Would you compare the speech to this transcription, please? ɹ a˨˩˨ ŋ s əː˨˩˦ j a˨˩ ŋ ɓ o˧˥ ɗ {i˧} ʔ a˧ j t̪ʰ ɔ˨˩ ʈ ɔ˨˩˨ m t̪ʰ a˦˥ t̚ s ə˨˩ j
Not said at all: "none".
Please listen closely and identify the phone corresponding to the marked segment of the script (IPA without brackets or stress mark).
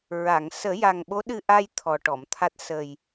ɨ˧